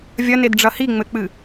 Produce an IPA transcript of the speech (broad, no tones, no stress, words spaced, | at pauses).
vʲɐnedɖ͡ʐɐ hiŋ͡mɘk͡pɨ